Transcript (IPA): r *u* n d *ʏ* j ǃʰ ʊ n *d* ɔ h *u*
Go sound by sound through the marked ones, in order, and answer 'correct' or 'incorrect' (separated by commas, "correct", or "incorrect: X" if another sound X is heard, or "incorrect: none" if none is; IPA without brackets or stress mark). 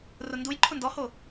incorrect: ʊ, incorrect: u, correct, incorrect: o